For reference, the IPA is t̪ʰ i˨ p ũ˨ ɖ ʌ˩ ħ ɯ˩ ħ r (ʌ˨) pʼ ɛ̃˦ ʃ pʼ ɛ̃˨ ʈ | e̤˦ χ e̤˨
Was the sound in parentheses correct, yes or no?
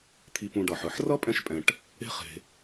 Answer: no